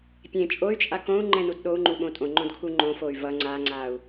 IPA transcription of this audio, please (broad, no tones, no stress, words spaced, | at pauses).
pʲẽ t͡ʃʼoy̯t͡ʃʼa kõu̯ŋ͡ǃɛ̃nud ɗou̯ŋ͡ǃuɓõ tʼõŋ͡ǃõdkʰu ŋ͡ǃõfoy̯ vʌ ŋ͡ǀaŋ͡ǀau̯